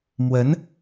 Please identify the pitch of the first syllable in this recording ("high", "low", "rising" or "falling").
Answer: rising